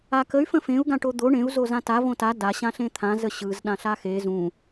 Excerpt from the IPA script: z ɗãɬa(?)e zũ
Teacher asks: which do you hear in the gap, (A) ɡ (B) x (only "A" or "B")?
B